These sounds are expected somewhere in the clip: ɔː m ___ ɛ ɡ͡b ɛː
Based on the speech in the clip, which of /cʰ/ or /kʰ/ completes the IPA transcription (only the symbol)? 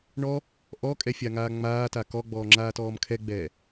kʰ